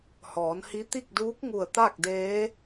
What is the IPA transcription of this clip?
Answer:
h ɔː˩˧ n h i˧˥ t̪ i˥˨ k̚ d uː˧˥ k̚ ŋ u˧˩ ə̯ t̪ a˥˨ k̚ d eː˧˥

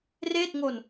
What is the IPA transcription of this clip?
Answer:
r eː˥˩ t̚ ŋ o˧ n

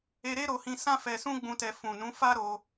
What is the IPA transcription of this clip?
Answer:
e˧ ɾ e˦ ɾ o˧ h ĩ˧ s ã˦ f ɛ˧ s ũ˦ ɡ͡b ũ˧ t ɛ˧ f ũ˨ n ũ˨˦ f a˦ ɾ o˧

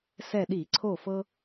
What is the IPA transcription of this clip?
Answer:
s ɛ˧˩ ɗ i˧˩˧ ǀʰ o˧˩ f ɤ˧

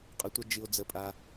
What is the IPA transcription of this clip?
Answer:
qʼ ʌ˩ tʷ a˨ d͡ʒ ɨ˩ o̯ d͡z ə˩ pʼ a˩

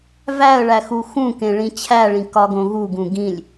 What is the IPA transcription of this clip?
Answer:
v æ ə̯ ɭ æ x u x ũ k ẽ ɭ ĩ t͡ɕʰ æ ɭ ĩ k ɒ ɡ õ ɣ u ɡ ũ ɡ ĩ lʲ

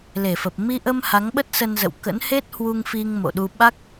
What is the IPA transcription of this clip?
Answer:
l e˧˩ f ə˨˩ p̚ m i˧ ʔ ə˧ m h a˨˦ ŋ ɓ ə˦˥ t̚ s ə˧ n z ə̰˧˨ w k ə̰˧˥ n h e˦˥ t̚ h w u˧ ŋ f i˧ ŋ m o̰˧˨ ɗ u˧ ɓ a˦˥ k̚

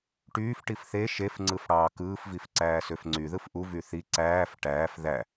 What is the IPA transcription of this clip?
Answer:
ʈ yː f ʈ i f θ e ʃ e f ŋ͡ǀ ɯ f ɽ ɑː k ɯː f v i f ǀ æː s ø f ŋ͡ǀ y ð ɯ f ʔ u v y θ i ǀ æː f ʈ æː f ð æ

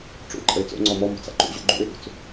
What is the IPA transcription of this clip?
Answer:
ʈ͡ʂ ṵ ɪ̯ ǃʼ ə ɪ̯ t͡s o̰ ŋ͡ǀ ɔ m ɔ m ṳ t͡s a̰ ǃ ṵ ʑ ṵ ɡ͡ǃ ṵ ɪ̯ ʔ ṳ t͡s

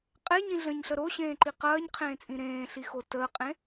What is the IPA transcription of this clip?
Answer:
qʼ e ɲ ĩ ɮ ə̃ː ɲ ɬ ə ɾ o ɕ ẽː ǃ i q ɐː ɲ qʰ ẽː t͡sʼ ĩ ɾ ẽː ɬ i x o t əː qʼ ẽ

